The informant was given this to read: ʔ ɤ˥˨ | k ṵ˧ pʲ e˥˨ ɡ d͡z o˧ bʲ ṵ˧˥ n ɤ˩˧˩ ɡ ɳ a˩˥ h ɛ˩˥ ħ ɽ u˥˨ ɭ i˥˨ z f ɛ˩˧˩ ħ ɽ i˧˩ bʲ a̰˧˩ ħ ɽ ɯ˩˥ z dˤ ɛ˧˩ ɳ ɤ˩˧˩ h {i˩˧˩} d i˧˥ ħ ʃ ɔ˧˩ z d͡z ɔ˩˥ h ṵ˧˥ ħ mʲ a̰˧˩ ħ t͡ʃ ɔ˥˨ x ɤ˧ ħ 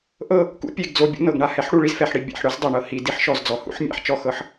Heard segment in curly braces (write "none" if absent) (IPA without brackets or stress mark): i˩˧˩